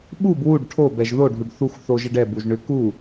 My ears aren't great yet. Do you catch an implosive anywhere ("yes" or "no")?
yes